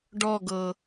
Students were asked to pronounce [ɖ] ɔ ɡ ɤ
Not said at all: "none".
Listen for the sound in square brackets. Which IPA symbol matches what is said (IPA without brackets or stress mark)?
ɖ